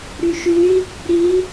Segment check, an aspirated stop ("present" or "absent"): absent